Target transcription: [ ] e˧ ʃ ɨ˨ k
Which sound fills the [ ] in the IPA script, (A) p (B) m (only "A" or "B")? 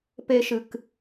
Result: A